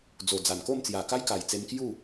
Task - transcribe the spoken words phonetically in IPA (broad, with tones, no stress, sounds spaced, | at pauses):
d͡z o˨˩ d͡z a˨˩ n k o˥˧ m t͡s j a˨˩ k a˦ j k a˨˩ j t͡s e˧ m k j u˥˧